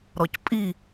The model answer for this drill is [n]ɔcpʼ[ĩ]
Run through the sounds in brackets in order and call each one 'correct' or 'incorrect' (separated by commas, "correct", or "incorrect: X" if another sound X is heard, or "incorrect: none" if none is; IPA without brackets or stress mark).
incorrect: ɾ, incorrect: i